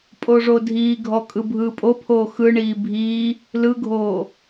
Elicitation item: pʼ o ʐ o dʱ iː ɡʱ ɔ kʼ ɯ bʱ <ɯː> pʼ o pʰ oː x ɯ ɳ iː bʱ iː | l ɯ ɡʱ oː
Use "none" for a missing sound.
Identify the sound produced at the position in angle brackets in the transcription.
ɯː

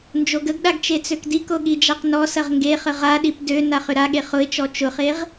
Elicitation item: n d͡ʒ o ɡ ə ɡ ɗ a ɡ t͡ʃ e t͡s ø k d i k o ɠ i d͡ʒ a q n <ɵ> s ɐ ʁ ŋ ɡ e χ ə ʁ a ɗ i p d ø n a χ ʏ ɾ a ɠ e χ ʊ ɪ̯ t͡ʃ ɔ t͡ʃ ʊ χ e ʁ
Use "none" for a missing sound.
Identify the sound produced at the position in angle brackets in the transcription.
ɔ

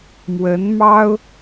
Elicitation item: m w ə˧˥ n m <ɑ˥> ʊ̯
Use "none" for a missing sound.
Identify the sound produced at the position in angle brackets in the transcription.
ɑ˥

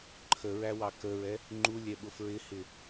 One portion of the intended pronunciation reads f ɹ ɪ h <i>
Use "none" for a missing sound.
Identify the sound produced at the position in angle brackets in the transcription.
ɪ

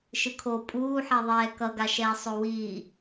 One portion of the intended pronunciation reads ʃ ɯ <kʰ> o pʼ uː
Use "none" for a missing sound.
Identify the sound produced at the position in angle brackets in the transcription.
kʰ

